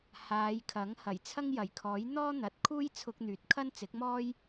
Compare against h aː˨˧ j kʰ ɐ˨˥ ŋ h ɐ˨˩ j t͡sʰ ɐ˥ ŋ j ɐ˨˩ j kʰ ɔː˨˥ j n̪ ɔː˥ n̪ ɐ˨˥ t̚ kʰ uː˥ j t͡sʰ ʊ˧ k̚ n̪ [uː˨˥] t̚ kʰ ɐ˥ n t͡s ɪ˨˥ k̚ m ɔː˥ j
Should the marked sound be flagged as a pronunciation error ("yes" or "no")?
yes